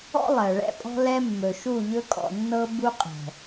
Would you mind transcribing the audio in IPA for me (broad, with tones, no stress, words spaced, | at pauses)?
ɔ̰˦lˠɜ˨ ɭɛ̰˦pʼɔ̤˦lɛ˦ mːɵ˨ʃu˦˨ʎɵ˦ kʼɔ̰˨nːɤ˦ bu˦qʼɛ̤˨